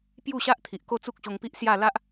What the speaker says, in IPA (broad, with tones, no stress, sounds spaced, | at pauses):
p j u˥˧ ɕ a˦ ʔ t̪ʰ i˨ ʔ k o˥˧ t͡s u˦ k̚ ɕ o˧ ŋ p i˦ ʔ s j a˥˧ l a˦ ʔ